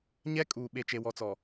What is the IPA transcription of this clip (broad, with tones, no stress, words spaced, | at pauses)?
ɲɛ˦ kʼuː˨ ɓe˨t͡ʃe˨wɔ˨t͡sɔ˨